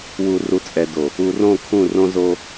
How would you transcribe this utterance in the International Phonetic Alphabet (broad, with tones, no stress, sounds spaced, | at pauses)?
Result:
w u˨ r u˨ t͡sʼ ɛ˨ d o˨ | u˨ r õ˦˨ kʰ ũ˦˨ r õ˦ z o˦